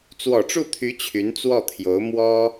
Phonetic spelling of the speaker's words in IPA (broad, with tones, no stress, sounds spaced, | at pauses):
t͡s w ɔ˨˩ ʈ͡ʂ u˥˩ t̪ʰ y˧˥ t͡ɕʰ y˧˥ n t͡s w ɔ˥˩ t̪ʰ j o˧˥ ʊ̯ m w ɔ˥